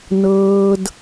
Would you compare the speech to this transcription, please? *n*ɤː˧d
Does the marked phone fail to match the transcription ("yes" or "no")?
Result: no